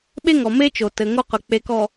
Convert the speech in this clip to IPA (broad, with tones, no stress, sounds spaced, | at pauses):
ɓ e˦ ŋ ɔ˨ m e˦ t͡ʃ o˨ t ɘ˨ ŋ o˦ q ɵ˨ k͡p e˨ k ɔ˨